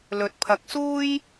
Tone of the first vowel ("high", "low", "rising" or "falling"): low